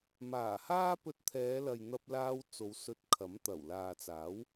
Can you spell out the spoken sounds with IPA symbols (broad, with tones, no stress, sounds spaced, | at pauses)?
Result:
m aː˨˩ h aː˥ p ɵ˧ t̚ t̪ʰ ɛː˨˧ l ɐ˨ j n̪ ɐ˧ p̚ l aː˧ w t͡s o˨˧ w s ɵ˧ t̚ kʰ ɐ˨˥ m t̪ ɐ˨˩ w l aː˨ t͡s aː˨˥ w